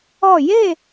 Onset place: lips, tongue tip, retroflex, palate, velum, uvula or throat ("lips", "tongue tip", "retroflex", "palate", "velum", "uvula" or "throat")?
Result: palate